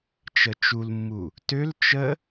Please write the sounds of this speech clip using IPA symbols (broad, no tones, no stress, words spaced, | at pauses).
t͡ʃət͡ʃulmːu | tøl t͡ʃə